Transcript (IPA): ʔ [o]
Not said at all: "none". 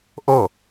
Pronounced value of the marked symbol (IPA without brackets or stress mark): o